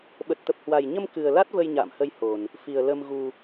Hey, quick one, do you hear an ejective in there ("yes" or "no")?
no